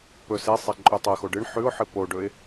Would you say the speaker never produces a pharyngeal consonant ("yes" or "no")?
no